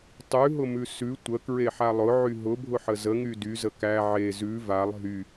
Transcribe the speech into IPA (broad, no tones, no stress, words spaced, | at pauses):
tˤʉɦʊmʉ sʉ tʷəkɹeħa lˠʊʕy ɦʊbʱʊħə zəŋy dyzə kæ ʕe zʉ valˠ ɦy